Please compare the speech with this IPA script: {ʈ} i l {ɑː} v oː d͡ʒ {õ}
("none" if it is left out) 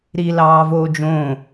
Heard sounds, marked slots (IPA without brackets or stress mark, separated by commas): ɾ, ɑː, õ